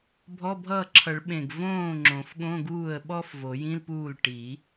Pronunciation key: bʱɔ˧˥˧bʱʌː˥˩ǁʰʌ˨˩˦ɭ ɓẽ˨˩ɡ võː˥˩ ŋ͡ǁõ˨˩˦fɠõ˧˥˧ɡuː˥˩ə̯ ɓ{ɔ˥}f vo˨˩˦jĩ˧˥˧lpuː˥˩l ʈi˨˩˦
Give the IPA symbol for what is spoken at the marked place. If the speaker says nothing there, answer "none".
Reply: ɔ˥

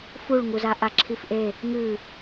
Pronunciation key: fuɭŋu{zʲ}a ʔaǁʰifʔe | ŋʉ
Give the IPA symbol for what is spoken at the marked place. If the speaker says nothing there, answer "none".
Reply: z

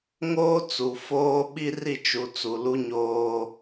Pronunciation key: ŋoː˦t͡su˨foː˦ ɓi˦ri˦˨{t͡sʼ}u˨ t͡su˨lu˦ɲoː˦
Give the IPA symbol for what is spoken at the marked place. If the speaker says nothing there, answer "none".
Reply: t͡ʃ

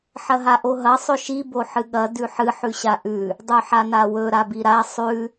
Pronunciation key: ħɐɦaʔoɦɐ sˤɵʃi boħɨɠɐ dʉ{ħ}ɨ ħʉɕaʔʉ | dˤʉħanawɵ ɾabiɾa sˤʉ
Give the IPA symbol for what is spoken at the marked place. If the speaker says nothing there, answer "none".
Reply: ħ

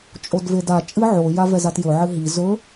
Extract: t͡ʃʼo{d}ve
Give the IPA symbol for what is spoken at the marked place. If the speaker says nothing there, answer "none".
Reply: d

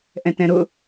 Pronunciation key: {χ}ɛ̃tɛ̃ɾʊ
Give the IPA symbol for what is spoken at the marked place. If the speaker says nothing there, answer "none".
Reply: ʔ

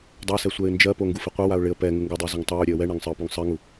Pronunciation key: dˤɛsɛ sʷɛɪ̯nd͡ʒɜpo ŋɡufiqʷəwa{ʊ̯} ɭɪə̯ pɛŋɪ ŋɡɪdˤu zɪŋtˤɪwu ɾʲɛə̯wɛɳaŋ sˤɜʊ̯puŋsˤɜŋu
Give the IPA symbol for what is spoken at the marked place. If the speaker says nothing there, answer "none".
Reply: ʊ̯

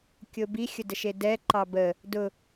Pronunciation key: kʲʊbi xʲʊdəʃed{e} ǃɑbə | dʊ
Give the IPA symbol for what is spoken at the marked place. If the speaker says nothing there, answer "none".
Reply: ɛ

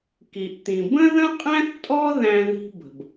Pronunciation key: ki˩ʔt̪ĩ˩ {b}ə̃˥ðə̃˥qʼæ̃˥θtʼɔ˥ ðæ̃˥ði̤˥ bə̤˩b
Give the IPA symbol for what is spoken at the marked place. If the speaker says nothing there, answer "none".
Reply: b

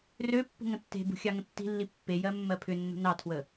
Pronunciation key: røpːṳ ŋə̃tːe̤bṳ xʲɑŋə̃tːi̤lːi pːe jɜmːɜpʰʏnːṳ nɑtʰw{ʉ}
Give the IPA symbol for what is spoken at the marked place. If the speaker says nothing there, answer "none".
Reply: ə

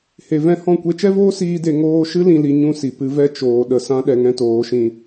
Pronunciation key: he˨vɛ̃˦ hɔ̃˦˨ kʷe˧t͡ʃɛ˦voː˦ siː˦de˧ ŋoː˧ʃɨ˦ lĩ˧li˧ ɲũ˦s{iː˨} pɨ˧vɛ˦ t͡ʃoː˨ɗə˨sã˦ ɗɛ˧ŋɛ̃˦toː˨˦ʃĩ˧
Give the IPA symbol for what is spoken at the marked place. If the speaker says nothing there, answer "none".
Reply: i˨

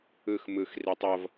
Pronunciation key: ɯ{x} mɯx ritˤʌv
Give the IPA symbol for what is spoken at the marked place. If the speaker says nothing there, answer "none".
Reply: x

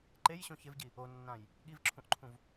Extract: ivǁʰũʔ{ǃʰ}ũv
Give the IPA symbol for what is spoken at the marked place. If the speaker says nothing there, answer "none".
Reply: ǃʰ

